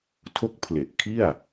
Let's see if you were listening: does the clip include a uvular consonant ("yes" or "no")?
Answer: no